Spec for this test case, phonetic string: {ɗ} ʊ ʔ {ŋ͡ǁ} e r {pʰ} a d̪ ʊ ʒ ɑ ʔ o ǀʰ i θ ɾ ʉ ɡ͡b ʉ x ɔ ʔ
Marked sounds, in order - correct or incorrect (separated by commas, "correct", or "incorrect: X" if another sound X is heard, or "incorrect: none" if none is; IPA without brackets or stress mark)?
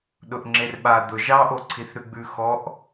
correct, correct, incorrect: ɓ